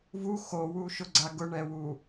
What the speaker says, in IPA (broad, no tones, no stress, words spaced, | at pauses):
vu xowuʃʊɡ͡ǀa ɡʊɳɛwu